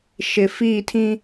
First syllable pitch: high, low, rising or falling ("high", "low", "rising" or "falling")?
low